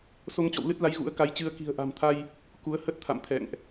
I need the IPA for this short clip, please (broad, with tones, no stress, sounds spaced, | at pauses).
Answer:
s o˧ ŋ t͡ɕ ɔ̰˧˨ w l ɨ˦˥ t̚ l a˨˦ j ɣ ṵ˧˥ ə̯ k a˨˦ j t͡ɕ ɨ˧ ə̯ k i̤˨˩ ə̯ ʔ a̤˨˩ m t̪ʰ a˧ j | k u˨˦ ə̯ h ə˦˥ t̚ t̪ʰ a̰˧˨ m t̪ʰ ɛ̰˧˨ ŋ ʔ